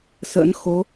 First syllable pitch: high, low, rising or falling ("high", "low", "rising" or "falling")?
rising